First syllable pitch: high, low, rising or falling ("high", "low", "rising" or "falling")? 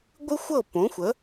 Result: high